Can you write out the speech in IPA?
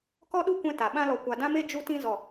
kɔ˦ɗu˦kʷɛ̃˧ ta˨ ɓã˧lɔ˨ kʷa˨dã˦me˦ d͡ʒu˧tĩ˧ zɔ˨

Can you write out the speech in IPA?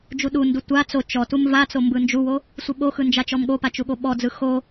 d͡ʒuɗundu tʷa t͡so t͡ʃɔtum vat͡so mbɯnd͡ʒuwo | sʷɯɓoxɯ nd͡ʒat͡ʃɔmɠopa t͡ʃuɠoɓɔd͡zɯ xo

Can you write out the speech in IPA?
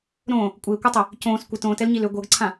ɾõ | kʷʼɪːkʷɤtˤʏ | cõːs kʷɪ tõːtɛlɲil ʏ ɡʷɤɡǀʰã

